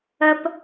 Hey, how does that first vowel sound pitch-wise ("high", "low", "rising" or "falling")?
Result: low